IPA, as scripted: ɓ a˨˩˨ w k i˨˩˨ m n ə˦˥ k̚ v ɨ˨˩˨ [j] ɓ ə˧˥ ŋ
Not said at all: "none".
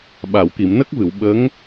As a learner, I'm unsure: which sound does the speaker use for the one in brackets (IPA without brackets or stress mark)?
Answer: w